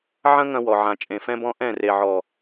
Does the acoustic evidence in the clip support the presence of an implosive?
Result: no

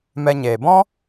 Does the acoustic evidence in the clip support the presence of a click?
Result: no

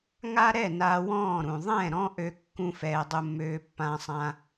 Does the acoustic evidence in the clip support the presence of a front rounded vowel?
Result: yes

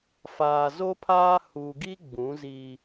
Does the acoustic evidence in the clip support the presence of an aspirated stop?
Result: yes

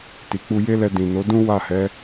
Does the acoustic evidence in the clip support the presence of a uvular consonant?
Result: no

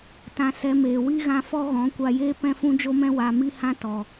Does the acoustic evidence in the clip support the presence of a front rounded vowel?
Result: no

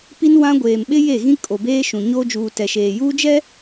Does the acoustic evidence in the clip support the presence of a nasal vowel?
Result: yes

